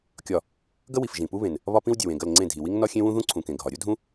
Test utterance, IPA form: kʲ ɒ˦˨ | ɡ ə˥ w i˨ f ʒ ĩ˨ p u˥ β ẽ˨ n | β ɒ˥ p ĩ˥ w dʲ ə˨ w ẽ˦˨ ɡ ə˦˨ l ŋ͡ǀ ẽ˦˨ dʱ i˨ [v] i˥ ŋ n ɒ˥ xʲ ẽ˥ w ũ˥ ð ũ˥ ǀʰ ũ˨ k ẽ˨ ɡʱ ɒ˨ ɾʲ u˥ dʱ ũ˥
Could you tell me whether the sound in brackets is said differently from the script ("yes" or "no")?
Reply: yes